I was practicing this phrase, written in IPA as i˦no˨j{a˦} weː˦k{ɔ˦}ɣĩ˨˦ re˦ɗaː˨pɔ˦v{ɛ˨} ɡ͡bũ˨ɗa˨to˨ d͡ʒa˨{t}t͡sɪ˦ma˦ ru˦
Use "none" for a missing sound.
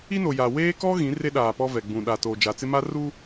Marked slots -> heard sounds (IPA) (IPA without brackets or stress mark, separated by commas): a˨, ɔ˦, ɛ˨, none